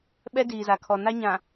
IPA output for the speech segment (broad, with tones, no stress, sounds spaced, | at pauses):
ɓ ɛ˦ d iː˨ z a˨ kʰ ɔ˨ n a˦ ɲ ã˨